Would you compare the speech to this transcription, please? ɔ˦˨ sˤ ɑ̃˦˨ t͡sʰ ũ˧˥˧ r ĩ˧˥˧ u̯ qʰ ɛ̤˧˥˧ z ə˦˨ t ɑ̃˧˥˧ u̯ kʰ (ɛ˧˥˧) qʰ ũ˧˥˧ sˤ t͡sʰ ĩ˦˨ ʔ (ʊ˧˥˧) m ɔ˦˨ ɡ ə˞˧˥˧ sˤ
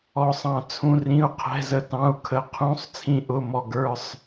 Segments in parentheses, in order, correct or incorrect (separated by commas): incorrect, correct